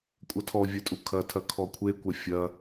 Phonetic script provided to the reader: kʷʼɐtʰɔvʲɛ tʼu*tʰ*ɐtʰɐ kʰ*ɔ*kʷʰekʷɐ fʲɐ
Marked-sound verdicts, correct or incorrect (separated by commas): incorrect, correct